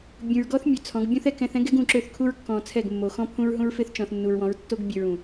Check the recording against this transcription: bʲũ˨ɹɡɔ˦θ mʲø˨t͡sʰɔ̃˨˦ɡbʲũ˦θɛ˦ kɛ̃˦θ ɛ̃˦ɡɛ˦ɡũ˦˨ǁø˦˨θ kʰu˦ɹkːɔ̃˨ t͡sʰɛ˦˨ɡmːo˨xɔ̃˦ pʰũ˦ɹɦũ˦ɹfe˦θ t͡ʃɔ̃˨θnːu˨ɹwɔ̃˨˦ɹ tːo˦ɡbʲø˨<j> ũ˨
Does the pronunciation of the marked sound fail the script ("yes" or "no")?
yes